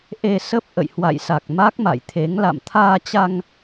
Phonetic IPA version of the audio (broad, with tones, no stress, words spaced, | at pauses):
ʔe˧sə˦˥p̚ ʔə̰˧˨jhwa̰˧˨jsa˨˩k̚ ma˦˥k̚ma̰˧˨jt̪ʰe˨˦ŋ la̰˧˨mt̪ʰaː˧t͡ɕa˧ŋ